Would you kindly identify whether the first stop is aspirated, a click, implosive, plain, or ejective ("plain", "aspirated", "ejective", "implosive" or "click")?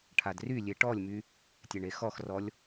aspirated